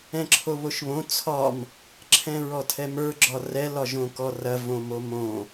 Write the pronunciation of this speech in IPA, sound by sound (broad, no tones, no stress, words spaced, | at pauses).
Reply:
ɛ̃ǁʰoβoʃβõ t͡sʰɒm | ǁʰɛ̃ɹɔtʰɛmə˞ ɡ͡ǁɒrɛl ɒʒõkɔrɐ võmomõ